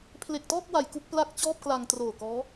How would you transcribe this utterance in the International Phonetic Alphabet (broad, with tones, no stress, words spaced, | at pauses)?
pʰle˨˩k̚tɔː˥˩k̚wa˨˩j ku˥˩k̚pla˥˩k̚t͡ɕɔː˥˩p̚kla˧ŋ troː˨˩ kɔː˦˥